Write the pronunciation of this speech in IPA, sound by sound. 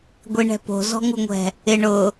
ɡʷ i ɳ ɛ̤ p o̤ z ɔ̤ ŋ u ŋʷ ɛ̤ | ɪ ɳ ʊ

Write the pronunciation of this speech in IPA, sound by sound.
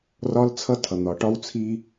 r ɒ˦ l t͡sʰ ʌ˦ tʰ ʌ˨ n̪ ɒ˨ ʈ ɒ˦ w t͡sʰ i˦

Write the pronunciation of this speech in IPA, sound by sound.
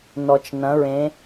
n ɔ˩ t͡ʃ n ɐ̃˩˧ ɹ ẽ˩˧

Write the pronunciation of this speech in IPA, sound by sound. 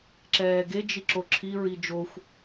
ǁ ɛː ɡ e d͡ʒ i ǁ o ǁʰ i ɹ i d͡ʒ o xʷ

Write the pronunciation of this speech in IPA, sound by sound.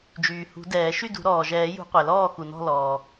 d͡ʒ yː˩ h ṳ˨˩˦ d ɛː˨˩˦ ʃ y˥˨ d ṳ˨˩˦ ɾ ɔː˩ ʒ ɛː˨˩˦ j ṳ˨˩˦ qʷ ɛ˩ l ɔː˥˨ x u˩ n ɔ̤˥˨ l ɔː˩

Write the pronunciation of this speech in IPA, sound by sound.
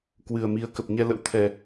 k w ɨ˨˩ ə̯ m i˨˦ ə̯ k ə˨˩ p̚ ɲ ɛ˧ l ə̰˧˥ w t̪ʰ ɛ˨˩

